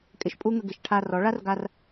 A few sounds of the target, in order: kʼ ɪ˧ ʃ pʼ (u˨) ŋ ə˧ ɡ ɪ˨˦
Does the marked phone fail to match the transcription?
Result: yes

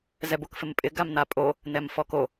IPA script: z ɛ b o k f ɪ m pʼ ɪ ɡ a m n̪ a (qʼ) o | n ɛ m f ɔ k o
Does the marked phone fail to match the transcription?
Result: yes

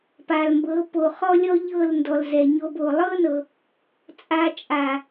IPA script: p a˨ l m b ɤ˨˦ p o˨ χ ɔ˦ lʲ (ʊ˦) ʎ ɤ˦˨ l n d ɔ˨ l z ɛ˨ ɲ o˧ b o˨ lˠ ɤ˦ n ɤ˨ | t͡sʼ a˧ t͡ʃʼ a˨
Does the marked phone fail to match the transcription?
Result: yes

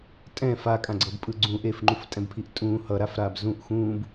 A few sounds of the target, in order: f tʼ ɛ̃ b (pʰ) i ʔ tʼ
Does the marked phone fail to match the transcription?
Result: no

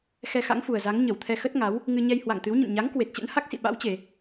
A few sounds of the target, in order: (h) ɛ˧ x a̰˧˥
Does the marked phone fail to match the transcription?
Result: yes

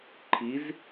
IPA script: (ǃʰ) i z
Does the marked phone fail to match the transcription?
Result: no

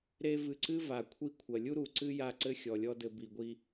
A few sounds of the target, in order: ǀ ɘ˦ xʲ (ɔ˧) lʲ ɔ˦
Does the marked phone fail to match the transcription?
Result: yes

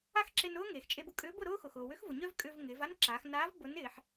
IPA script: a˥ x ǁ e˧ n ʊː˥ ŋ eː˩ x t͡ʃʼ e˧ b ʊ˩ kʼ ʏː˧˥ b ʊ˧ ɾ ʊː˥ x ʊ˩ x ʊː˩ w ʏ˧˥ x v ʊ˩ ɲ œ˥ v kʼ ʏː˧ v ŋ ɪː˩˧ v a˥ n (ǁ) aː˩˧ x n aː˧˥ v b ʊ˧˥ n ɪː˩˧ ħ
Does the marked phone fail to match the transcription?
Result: no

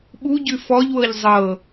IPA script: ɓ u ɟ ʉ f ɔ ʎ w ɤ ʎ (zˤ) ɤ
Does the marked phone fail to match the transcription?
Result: no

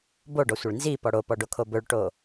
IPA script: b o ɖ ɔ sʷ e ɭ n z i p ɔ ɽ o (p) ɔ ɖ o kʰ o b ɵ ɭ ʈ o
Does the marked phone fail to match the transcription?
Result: no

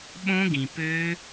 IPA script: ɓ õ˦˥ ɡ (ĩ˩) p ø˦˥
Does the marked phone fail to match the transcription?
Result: no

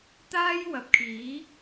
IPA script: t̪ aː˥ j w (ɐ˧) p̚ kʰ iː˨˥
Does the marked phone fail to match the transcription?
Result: yes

